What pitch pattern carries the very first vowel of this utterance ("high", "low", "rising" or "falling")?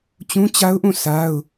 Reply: high